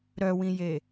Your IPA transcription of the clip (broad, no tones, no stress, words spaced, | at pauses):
ɾœwĩje